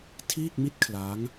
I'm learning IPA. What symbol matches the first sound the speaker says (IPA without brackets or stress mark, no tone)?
tʰ